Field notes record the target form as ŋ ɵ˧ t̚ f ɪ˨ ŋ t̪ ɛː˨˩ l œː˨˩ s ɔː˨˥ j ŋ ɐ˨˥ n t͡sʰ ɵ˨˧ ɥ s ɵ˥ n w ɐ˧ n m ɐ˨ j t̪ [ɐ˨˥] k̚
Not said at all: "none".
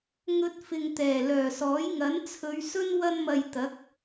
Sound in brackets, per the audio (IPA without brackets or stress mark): ɐ˨˥